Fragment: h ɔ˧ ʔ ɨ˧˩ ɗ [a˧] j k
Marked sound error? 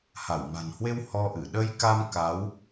yes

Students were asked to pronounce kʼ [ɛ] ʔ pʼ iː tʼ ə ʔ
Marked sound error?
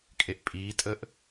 yes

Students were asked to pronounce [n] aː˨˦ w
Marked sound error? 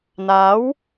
no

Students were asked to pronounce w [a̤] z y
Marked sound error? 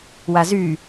yes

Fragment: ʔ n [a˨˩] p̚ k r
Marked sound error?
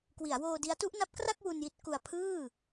yes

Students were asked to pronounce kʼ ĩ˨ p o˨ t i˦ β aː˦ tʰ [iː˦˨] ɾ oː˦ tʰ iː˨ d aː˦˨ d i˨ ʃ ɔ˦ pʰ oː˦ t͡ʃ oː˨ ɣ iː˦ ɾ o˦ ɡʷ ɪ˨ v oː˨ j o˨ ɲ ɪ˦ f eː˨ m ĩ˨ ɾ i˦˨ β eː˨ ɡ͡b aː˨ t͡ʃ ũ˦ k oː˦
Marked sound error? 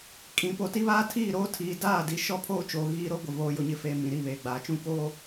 no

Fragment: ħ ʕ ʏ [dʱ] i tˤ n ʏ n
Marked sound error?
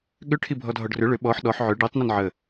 yes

